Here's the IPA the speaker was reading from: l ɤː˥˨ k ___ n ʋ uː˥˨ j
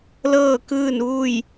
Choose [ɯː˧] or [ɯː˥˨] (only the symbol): ɯː˥˨